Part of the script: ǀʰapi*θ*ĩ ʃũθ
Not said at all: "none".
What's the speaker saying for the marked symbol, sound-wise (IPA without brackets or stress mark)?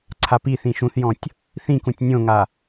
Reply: θ